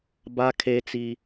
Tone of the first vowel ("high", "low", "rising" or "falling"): high